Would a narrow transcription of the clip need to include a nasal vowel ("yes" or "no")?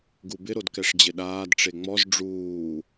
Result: no